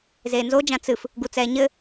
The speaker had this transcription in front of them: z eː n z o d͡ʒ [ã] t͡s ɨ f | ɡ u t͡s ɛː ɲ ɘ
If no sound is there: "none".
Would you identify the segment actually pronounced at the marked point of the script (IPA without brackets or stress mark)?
ã